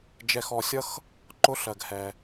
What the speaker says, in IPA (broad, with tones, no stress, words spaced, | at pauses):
d͡ʒɛ˧xɔ˧sʲʌ˦x | ǃʊ˦ ɬɜ˧ɡhɛ˧